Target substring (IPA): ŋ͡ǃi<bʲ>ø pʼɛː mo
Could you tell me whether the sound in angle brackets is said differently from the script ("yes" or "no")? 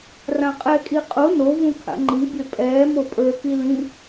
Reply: no